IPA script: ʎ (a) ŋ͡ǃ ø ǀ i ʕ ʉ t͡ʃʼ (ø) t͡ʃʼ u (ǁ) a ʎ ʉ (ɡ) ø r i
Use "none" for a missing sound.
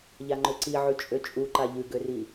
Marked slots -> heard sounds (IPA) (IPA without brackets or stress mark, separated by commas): a, ø, ǃ, ɡ